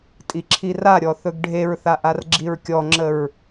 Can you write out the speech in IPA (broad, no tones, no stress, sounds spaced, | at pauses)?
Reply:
tʼ i ǁʰ i r a ɾʲ ɔ θ ɵ ɡ ɖʱ e ɹ θ a ʔ a r ɡ͡ǁ i ɹ kʲ ɔ ŋ͡ǁ ə ɹ